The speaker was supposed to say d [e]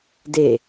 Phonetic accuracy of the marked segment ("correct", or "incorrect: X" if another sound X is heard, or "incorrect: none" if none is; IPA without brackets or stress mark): correct